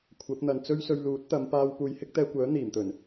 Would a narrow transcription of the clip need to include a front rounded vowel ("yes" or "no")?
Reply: yes